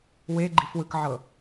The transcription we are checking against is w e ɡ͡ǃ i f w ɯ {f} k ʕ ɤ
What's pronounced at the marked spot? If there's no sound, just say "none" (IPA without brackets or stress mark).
none